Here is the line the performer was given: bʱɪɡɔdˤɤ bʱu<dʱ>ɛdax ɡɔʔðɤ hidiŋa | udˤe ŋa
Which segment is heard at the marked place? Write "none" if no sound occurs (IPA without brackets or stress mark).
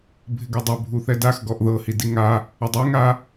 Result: θ